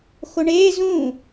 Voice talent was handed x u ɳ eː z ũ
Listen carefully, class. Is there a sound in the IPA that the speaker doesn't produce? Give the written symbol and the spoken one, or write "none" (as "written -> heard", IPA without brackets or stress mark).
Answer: u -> o